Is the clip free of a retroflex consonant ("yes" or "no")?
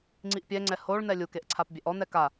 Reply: no